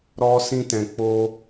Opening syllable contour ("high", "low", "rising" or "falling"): high